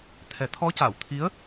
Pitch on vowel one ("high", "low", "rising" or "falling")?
low